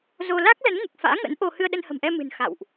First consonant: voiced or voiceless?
voiced